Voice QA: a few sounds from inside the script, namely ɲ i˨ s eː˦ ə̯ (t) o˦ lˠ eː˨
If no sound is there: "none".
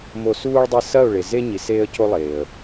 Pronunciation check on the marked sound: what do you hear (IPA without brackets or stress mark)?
c